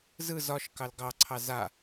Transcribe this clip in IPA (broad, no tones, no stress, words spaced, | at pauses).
zɯ zɒʃkɑl ɡɑǀʰɑ za